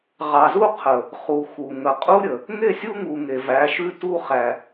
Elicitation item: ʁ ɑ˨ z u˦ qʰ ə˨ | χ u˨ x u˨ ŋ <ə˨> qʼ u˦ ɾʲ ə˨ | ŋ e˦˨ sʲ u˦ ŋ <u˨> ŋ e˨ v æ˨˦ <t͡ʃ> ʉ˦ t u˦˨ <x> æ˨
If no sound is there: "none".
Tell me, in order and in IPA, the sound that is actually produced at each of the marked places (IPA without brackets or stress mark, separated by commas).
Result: ə˨, u˨, ʃ, χ